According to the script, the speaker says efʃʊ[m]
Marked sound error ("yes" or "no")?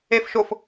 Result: yes